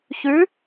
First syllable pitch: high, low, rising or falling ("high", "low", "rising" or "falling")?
rising